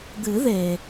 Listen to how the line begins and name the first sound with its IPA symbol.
d̪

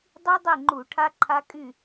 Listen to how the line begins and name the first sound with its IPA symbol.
dˤ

